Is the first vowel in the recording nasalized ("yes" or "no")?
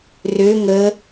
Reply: no